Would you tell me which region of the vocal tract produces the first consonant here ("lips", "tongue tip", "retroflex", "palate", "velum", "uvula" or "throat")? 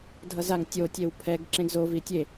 tongue tip